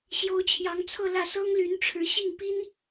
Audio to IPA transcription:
ɕjo˧˥ʊ̯t͡ɕʰjɑ˧˥ŋt͡sʰɤ˥˧lä˥˩ sɤ˥ŋly˧˥nʈ͡ʂʰɻ̩˧˥ɕi˥˩ŋ pi˥n

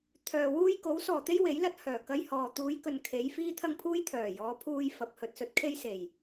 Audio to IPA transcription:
t̪ʰœː˨wuː˥j ko˨˥wsɔː˨˩t̪e˥j we˨˥jlɐ˧t̚hœː˨˩ kɐ˧jhɔː˨ t̪uː˨˧jkɵ˨n kʰe˨˧jfiː˥t̪ʰɐ˥ŋpʰuː˥j t̪ʰœː˨˩jɔː˨˧pʰuː˧j fɐ˨˥p̚ hɵ˨˥t̚sɵ˨˥t̚kʰe˥j se˨˩j

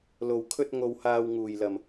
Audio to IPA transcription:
lo˨w kʰɵ˧t̚ŋo˨whaː˨w ŋuː˨˩jlɐ˨˩m

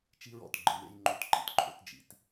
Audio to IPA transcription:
t͡ʃi˦ɹɔ̰˨tɡ͡ǃɯ˨wḛ˦j ŋ͡ǃo˦tǃḭ˦tǃʰo̰˦t d͡ʒḭ˨˦t

